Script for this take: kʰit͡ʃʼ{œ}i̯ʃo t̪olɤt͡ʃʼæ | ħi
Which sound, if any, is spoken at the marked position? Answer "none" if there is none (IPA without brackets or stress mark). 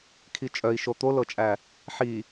œ